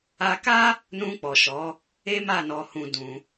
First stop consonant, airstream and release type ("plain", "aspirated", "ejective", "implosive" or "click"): plain